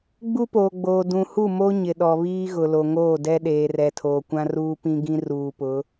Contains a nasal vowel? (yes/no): yes